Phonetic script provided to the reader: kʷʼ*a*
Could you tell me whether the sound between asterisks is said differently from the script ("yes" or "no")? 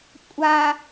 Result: no